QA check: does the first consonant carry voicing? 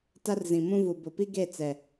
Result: no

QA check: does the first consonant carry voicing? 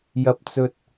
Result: yes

